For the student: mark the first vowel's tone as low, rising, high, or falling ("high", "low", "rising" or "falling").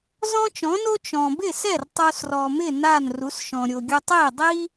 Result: high